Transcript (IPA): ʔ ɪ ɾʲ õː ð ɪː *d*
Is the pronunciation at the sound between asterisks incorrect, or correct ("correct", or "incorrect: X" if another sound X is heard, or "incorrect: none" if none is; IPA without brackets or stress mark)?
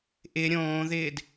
correct